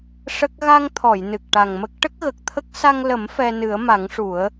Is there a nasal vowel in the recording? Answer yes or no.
no